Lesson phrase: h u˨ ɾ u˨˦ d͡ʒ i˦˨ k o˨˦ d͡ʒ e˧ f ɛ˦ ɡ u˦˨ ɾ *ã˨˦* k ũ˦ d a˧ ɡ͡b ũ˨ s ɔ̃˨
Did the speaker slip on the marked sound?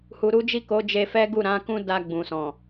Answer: no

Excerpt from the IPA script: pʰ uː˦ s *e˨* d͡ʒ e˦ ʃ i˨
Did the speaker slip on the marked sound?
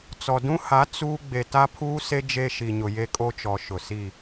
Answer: yes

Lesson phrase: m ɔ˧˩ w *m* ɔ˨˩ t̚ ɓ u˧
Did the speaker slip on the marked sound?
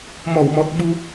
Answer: no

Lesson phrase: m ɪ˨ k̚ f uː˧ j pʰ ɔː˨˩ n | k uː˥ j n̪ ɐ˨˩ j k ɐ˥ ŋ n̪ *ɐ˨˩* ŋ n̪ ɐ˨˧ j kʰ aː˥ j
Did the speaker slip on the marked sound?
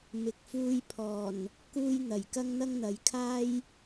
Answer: yes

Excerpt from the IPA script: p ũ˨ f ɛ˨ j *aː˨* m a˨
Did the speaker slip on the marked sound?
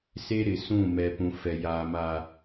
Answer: no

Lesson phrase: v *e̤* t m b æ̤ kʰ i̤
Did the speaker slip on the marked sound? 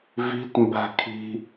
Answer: yes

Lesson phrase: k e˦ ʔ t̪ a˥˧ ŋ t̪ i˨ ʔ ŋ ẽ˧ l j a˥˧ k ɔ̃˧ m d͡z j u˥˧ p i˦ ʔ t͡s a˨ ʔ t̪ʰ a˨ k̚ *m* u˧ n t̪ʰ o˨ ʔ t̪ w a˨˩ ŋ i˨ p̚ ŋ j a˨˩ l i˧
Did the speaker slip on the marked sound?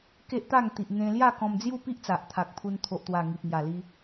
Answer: yes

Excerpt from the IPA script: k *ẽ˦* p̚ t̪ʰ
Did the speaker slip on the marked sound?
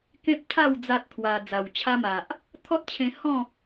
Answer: no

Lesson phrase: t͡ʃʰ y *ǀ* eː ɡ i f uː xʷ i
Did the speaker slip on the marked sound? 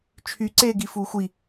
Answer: no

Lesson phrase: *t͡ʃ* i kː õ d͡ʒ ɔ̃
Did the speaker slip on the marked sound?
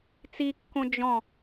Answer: yes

